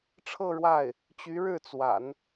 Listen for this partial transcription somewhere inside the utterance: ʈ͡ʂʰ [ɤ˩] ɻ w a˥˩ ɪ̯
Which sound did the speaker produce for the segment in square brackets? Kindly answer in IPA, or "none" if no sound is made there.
ɤ˥˧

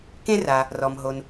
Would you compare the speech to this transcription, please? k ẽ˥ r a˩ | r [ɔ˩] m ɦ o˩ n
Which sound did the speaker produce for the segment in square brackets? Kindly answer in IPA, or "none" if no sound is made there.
ɔ˩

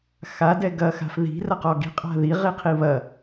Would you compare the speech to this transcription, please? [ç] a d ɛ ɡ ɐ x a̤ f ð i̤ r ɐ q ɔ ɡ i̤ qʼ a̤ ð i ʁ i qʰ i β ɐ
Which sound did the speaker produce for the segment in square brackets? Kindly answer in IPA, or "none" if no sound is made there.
x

